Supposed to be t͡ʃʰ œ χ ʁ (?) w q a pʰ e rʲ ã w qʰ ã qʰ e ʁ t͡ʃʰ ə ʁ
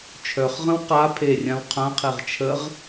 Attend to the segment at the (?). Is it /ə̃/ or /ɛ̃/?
ə̃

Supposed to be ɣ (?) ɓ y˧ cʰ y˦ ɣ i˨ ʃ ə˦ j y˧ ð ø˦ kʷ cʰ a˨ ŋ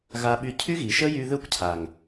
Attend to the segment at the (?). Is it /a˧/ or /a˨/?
a˧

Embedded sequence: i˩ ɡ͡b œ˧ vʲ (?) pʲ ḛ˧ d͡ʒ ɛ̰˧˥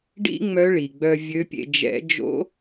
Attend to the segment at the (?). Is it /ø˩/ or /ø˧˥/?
ø˧˥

